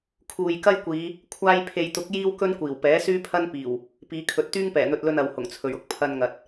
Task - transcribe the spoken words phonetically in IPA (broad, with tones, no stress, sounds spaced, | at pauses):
kʰ uː˨ j k ɐ˥ j kʷ iː˨˧ | kʷʰ aː˧ j pʰ e˨ j t̪ ʊ˨˥ k̚ j iː˥ w k ɵ˥ n kʷ iː˨˩ w p ɛː˨˥ s yː˥ pʰ ɐ˥ n p iː˨˩ w | p iː˨˧ kʰ ɵ˨ t̚ t̪ yː˥ ŋ p ɛː˨˩ n̪ ɵ˧ t̚ l ɵ˧ n ɐ˨ w h ʊ˨˩ ŋ t͡sʰ ɵ˨˩ ɥ ʊ˥ k̚ pʰ ɐ˧ n ŋ ɐ˨ t̚